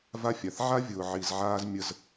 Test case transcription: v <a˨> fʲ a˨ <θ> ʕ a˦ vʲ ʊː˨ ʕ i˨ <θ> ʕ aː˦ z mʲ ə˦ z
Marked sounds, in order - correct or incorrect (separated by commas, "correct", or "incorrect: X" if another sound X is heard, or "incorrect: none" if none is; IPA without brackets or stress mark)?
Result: incorrect: a˦, correct, incorrect: z